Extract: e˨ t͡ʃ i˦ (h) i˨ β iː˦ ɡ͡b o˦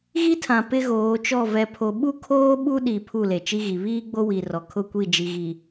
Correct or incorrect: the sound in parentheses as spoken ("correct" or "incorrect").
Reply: incorrect